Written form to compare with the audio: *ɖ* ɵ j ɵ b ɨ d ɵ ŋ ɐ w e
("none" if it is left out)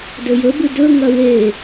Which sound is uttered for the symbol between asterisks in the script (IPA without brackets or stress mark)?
d